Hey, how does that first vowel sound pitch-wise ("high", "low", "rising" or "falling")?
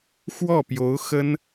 falling